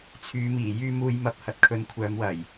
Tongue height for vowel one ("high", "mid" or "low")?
high